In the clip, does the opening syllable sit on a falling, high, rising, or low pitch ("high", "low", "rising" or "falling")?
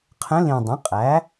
rising